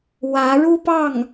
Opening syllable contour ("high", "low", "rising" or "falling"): rising